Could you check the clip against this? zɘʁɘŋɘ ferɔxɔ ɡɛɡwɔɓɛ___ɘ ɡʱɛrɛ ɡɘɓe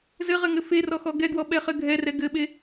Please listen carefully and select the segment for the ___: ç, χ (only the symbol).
χ